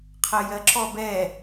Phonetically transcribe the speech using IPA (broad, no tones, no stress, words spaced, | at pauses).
qʰɜjɜǁɔ bɛ